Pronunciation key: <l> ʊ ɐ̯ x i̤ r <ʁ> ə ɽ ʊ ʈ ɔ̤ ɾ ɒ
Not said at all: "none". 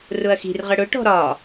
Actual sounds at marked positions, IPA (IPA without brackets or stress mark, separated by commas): r, ʁ